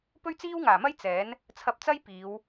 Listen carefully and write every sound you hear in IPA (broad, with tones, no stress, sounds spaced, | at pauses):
p ɵ˥ ɥ t͡s iː˥ w ŋ aː˨˩ m ɐ˥ j t͡s ɛː˨˥ n | t͡sʰ ɐ˧ p̚ t͡s ɐ˥ j p iː˨˧ w